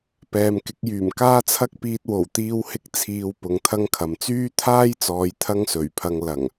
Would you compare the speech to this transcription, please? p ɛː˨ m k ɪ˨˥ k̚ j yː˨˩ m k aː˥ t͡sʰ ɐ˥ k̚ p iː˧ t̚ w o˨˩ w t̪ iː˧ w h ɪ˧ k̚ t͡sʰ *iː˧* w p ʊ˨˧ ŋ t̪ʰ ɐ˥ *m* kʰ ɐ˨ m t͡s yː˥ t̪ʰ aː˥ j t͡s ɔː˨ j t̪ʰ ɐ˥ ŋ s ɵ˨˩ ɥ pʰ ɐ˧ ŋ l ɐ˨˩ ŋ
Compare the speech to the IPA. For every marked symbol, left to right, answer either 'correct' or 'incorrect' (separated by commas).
correct, incorrect